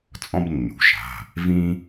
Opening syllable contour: high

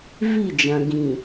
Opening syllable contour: falling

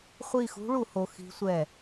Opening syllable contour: falling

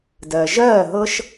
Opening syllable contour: low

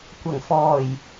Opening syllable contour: low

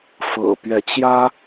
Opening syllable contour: low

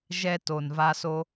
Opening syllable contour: high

